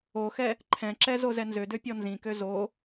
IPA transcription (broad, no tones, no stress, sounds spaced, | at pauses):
o x ɛ | ǃʰ ɛ̃ ǁ ɛ z o z ɛ n z ø d ø pʲ ɔ n z ĩ k ø z o